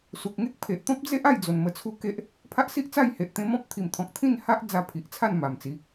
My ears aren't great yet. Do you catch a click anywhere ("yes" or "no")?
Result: no